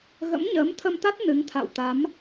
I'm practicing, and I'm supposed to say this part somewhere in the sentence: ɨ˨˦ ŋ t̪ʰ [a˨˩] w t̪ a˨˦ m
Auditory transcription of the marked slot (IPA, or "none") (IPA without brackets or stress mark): a̰˧˨